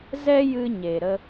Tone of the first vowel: high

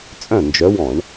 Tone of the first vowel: falling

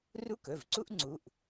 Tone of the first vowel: high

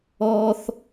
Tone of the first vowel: high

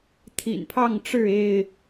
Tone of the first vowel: low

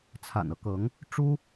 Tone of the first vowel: low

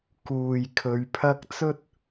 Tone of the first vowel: low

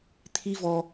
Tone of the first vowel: high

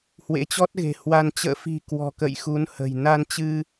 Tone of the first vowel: rising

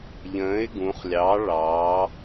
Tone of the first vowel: rising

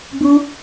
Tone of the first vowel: high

